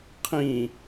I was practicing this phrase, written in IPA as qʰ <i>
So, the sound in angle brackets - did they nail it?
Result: no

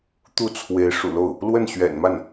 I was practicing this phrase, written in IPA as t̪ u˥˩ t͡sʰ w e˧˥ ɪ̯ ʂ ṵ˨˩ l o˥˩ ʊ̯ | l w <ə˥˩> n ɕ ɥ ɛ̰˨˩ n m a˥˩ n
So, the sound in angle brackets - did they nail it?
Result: yes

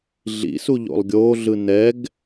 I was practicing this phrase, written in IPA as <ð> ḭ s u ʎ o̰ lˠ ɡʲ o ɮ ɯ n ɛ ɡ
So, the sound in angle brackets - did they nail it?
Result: no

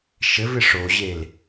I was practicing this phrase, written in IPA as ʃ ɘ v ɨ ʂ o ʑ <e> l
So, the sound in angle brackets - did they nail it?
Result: yes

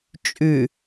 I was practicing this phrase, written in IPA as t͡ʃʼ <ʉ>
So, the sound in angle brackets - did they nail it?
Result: yes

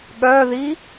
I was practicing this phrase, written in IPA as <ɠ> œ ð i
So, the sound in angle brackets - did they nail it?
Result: yes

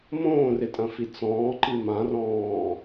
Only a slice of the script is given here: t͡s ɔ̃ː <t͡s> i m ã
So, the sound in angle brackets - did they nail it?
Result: no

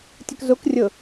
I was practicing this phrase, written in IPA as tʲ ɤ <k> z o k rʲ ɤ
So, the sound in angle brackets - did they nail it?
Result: yes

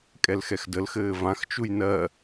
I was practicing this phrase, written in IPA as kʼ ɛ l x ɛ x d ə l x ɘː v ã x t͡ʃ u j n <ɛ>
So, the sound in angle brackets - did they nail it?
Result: no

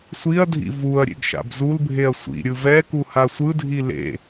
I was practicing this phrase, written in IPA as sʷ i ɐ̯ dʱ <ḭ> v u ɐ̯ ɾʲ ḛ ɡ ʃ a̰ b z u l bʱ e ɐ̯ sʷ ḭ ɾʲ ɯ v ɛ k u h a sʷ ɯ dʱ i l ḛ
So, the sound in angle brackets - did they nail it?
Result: yes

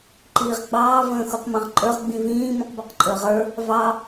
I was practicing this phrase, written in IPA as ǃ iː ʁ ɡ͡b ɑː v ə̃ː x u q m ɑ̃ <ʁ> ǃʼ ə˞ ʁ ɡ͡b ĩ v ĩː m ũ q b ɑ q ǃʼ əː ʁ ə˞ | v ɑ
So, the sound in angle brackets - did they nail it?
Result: yes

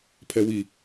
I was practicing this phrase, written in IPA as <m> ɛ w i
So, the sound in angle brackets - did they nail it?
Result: no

